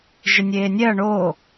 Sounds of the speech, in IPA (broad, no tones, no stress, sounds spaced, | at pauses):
ʒ ɪ nʲ eː nʲ ɛ ɐ̯ ɳ o